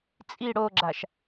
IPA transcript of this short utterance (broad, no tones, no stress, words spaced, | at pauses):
t͡sʼi ɽoɡ͡ǁaʃ